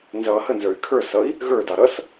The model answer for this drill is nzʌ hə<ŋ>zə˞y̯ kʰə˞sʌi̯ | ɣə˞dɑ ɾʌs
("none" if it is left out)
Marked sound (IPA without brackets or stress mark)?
n